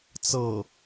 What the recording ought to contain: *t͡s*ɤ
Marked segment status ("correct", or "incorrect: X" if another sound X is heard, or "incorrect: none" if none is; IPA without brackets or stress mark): correct